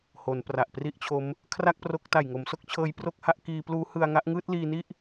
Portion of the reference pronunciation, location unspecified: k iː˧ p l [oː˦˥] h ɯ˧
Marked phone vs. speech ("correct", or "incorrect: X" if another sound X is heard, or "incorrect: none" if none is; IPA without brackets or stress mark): incorrect: uː˦˥